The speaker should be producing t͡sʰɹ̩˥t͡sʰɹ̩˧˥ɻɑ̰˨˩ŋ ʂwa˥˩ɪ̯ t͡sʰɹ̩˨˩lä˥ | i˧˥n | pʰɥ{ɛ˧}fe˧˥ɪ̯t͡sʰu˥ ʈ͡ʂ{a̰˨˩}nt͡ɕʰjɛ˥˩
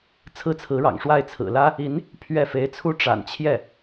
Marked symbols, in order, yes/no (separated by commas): no, yes